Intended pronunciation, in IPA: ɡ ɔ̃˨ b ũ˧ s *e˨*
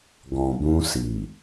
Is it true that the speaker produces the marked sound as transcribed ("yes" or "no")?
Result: no